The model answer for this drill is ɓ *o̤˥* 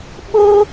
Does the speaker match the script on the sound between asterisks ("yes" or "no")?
no